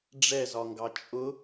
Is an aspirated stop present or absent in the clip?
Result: absent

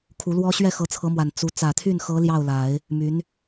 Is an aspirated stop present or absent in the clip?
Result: present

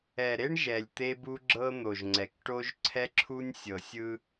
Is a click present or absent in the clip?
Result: present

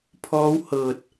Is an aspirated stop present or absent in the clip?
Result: present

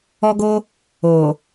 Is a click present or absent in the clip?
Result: absent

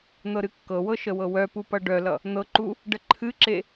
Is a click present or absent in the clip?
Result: present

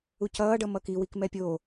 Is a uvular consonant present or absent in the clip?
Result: absent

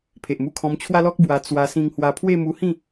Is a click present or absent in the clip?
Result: absent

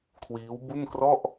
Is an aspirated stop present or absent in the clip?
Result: present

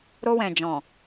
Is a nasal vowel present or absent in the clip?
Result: present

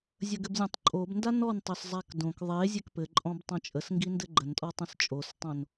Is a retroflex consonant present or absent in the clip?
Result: absent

